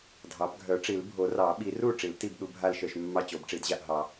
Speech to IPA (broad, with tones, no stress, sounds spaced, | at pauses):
dʱ ɑ˨˩˦ b ɡʱ œ˨˩˦ ʈ͡ʂ i˨˩˦ l bʱ o˨˩˦ r ɑ˨˩˦ ɓ i˨˩˦ r u˥˩ ʈ͡ʂ i˨˩˦ l t i˥˩ b ɗ u˨˩˦ bʱ a˥˩ l ʃ œ˥˩ ʃ mː ɑ˥˩ t͡ɕ o˨˩˦ b ʈ͡ʂ i˨˩˦ d ʑ a˥˩ ʔ ɦ ɑ˨˩˦